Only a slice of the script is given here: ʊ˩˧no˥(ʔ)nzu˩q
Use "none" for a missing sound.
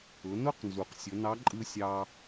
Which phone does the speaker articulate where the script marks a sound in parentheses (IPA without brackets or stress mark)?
q